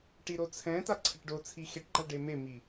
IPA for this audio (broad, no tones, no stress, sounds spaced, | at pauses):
ʈ i ɾ o t͡sʰ ɛ̃ t a ǀʰ ɛ ʈ ɖ o t͡sʰ i x e ʈ ɡ͡ǃ a ɖ e m e m i